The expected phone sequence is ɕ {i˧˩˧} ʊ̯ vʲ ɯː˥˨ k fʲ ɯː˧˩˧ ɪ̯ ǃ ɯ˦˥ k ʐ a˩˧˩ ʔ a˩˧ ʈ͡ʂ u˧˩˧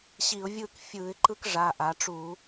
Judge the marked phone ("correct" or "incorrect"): correct